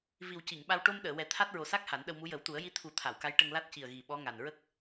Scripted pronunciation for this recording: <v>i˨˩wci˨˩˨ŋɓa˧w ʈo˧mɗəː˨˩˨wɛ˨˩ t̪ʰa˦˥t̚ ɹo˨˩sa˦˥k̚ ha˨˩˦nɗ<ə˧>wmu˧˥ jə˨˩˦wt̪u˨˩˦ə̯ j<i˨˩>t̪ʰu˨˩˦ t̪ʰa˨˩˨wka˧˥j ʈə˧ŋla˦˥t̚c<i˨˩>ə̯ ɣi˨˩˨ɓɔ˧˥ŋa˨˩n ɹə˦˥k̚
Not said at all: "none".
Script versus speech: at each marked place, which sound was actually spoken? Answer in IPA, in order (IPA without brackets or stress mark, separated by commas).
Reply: v, ə˧, i˧˥, i˨˩